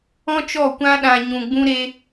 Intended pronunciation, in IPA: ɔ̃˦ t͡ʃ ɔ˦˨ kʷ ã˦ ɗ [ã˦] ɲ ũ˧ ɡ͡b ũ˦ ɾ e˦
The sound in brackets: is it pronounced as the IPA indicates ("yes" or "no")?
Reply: no